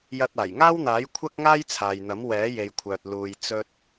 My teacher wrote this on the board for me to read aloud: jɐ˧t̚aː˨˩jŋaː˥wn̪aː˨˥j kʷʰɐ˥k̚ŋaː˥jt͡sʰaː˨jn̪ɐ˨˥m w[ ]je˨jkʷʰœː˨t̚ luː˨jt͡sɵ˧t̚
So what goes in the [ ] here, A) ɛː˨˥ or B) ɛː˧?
A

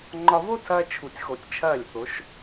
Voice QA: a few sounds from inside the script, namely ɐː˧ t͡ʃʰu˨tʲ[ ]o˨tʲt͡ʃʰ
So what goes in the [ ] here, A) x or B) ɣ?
A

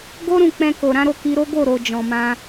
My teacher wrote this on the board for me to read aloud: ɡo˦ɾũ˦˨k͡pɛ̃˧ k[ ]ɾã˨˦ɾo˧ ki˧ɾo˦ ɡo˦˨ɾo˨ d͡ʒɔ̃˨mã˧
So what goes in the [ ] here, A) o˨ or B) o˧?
A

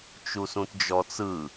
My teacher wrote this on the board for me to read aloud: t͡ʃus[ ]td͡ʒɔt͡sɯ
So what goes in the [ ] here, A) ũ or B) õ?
A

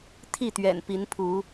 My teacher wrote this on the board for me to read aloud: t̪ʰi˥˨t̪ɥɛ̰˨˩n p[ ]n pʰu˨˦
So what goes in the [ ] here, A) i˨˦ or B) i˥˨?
A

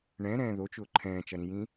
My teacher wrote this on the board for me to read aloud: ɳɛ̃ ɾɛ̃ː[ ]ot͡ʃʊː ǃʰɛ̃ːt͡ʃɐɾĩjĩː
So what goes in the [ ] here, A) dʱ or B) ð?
B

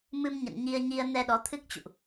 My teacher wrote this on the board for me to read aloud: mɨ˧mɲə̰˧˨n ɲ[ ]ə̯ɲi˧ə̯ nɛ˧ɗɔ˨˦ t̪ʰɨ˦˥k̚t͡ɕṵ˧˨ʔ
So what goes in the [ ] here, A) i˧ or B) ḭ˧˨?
A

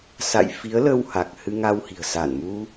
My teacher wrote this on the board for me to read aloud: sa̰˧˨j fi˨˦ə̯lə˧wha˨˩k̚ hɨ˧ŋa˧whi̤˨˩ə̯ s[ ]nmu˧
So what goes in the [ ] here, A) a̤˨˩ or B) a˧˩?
B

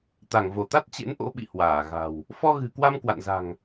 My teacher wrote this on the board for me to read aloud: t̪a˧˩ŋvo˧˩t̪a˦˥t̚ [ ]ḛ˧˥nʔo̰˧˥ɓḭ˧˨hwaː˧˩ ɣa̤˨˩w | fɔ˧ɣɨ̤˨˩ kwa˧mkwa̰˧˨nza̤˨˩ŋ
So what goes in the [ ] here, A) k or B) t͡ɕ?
B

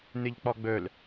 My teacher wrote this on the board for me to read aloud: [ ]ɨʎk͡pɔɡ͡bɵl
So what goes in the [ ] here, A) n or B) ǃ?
A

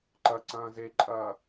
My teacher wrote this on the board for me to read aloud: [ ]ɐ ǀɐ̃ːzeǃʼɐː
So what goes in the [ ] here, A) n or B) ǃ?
B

